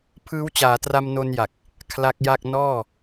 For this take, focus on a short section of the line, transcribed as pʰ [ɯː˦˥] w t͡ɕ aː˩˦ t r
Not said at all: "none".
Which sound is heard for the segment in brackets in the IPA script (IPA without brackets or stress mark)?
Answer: ɯː˦˥